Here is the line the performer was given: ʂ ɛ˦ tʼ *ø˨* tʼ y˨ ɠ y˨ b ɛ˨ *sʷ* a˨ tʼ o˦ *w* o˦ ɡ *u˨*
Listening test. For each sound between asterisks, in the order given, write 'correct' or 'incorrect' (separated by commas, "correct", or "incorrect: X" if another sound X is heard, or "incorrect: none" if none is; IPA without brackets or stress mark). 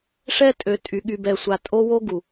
correct, correct, correct, correct